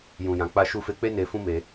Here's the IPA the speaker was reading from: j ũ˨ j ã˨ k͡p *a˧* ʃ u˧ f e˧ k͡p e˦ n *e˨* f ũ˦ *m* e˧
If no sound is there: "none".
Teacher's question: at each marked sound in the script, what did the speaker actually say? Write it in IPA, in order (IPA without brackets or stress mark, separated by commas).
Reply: a˧, e˧, m